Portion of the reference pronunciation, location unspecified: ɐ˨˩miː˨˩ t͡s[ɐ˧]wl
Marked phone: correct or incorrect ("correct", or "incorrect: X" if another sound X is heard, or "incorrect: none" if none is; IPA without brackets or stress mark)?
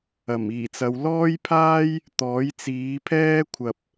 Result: incorrect: ɐ˨˧